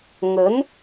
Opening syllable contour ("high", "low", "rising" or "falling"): rising